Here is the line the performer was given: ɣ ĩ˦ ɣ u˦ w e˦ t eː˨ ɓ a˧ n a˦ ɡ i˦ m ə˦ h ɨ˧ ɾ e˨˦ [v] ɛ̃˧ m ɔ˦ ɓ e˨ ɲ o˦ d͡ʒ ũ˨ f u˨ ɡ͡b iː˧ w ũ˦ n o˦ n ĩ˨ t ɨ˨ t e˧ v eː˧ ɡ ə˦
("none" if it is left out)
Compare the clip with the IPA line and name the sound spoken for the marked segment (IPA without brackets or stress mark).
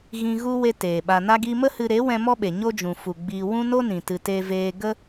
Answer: w